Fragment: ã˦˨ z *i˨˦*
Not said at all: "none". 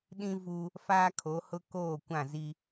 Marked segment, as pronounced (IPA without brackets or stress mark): i˦